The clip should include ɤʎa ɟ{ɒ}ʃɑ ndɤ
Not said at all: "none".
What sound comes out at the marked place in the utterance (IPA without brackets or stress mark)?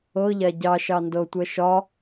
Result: ɑ